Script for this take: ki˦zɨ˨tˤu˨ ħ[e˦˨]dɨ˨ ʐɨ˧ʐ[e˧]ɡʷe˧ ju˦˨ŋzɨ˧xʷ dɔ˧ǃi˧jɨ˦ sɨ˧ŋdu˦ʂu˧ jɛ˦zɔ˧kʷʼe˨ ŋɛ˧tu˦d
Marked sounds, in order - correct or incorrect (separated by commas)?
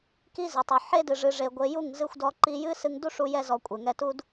incorrect, correct